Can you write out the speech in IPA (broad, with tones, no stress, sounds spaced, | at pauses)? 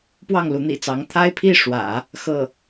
p w ɑ˥˩ ŋ l u˧˥ n̪ ḭ˨˩ t͡s ɑ˧˥ ŋ t̪ʰ a˥ ɪ̯ pʰ i˥˩ ʂ w ä̰˨˩˦ | x ɤ˥˩